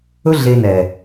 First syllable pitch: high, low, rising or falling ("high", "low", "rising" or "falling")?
high